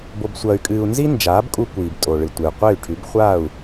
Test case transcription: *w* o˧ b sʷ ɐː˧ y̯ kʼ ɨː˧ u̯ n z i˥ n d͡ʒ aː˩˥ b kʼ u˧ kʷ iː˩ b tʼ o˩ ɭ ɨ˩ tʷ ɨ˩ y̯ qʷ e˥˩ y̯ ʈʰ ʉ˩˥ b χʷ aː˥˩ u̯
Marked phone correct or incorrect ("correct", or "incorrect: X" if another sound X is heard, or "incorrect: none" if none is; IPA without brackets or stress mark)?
incorrect: b